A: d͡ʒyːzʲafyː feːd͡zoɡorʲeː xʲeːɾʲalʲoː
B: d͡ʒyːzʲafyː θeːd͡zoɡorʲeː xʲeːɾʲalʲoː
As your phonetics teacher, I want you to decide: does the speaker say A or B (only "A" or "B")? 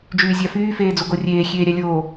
A